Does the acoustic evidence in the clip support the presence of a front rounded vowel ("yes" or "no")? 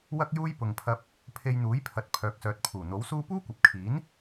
yes